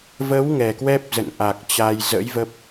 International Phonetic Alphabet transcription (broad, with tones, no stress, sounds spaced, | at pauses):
v ə˨˦ w ŋ ɛ˨˩ k w ɛ˦˥ p̚ z ə̰˧˨ n ʔ a˨˩ k̚ t͡ɕ a˧ j z ə̰˧˥ j v ə˦˥ p̚